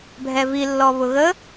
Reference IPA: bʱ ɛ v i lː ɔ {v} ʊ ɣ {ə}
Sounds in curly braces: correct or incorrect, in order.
incorrect: β, correct

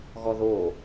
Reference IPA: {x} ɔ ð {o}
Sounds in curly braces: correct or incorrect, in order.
incorrect: ɣ, correct

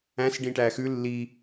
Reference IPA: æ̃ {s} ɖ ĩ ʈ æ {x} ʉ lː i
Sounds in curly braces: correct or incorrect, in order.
correct, correct

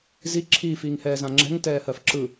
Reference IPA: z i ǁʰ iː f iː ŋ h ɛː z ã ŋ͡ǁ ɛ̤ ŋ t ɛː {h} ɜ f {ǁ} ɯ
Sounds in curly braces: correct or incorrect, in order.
correct, correct

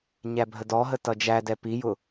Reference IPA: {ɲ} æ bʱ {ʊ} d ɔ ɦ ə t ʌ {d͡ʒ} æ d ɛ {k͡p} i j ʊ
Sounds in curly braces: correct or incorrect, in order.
correct, incorrect: ə, correct, incorrect: p

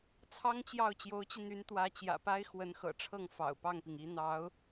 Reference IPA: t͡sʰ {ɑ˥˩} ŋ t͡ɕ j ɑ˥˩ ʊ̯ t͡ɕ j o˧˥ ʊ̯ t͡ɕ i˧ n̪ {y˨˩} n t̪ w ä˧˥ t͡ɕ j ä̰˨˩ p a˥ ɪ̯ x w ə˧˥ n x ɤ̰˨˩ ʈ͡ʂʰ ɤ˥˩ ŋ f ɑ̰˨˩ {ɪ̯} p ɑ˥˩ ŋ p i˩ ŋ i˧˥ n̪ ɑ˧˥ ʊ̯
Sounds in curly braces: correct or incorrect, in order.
incorrect: ɑ˥, incorrect: y˧˥, incorrect: ʊ̯

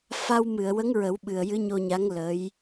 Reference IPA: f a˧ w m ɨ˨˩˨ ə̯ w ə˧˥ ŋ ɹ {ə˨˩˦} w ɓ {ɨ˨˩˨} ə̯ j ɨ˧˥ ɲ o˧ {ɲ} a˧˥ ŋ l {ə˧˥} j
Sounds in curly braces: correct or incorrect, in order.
correct, incorrect: ɨ˨˩, correct, correct

